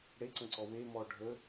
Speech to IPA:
ɽeǀə̃ǀɔ wemɔ ɖʱə

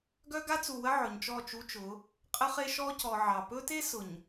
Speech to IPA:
ɡœ˦ɡa˦t͡su˨wə˦ ʕɵ˨ɲt͡ʃɔ˦˨t͡ʃu˦t͡ʃʊ˨˦ | qʼə˦χe˦ʃɔ˦ cɔ˨ʕɑ˨ pɵ˦te˦ sʊ˨ɲ

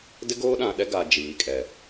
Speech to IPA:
dɪ˦ɡoː˦ɗã˨ɗɛ˦ ɡa˨ d͡ʒiː˨kʼɛ˨

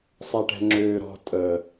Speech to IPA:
sˤɛʈɛ̤ŋ͡ǁøːɾɔ̤ tʼəː

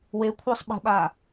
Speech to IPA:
wekʷʰə˞sˤ ɓə̤ɓa

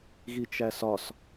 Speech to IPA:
ɣit͡ʃæsɒs

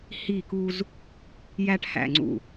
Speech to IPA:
hi˦˨ku˦z | jæ˦ʈhæ̰˦˨ŋ͡ǀṵ˦˨

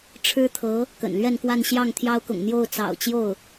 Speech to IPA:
ʈ͡ʂʰɻ̩˥t̪ʰɤ˧˥ | kə̰˨˩nlɥɛ˥˧nkwa˥˧n ɕjɑ˥˩ŋt̪ʰjɑ˥ʊ̯kʊ̰˨˩ŋ n̪jo˥˩ʊ̯t͡sɑ̰˨˩ʊ̯ t͡ɕjo˥˩ʊ̯

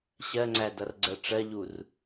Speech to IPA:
ɕɜŋ͡ǀædʌrɡ͡ǀɜ ʈ͡ʂɜʎur

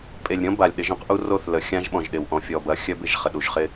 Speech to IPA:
pʼe˨lʲɾʲɔ̃˦ba˨lʲ ɗɪ˨˦ʒœ̃˦qʔu˦ ro˦˨θlə˨ xʲã˦ʒɓɔ̃˨ʒɗɪ˨w ʔɔ̃˨fʲɔ˨bɐ˨˦ xʲœ˦bɪ˦˨ʒ χə˨ɗu˨ʒχɪ˦

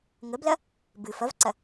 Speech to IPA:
ŋəblɐ | bɨ fɐvǀɐ

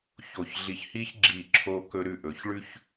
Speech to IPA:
ço˧˩çɮi˧˩çhiː˥ç ɡ͡ǁiː˧˩ǁʰoː˧kɵ˧ ɾʉ˧˩ʔɵː˩˧ç ɭʉ˥ç

